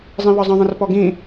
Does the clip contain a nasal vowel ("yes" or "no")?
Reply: yes